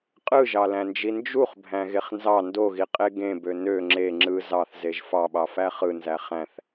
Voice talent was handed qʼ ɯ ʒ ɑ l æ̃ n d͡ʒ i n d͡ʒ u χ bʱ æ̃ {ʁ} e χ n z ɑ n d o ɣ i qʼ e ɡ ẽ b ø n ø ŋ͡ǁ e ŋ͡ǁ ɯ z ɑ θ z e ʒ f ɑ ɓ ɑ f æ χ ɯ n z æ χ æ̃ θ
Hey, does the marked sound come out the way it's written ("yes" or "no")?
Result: no